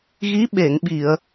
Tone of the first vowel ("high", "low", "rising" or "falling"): rising